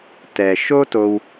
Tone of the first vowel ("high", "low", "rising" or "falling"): low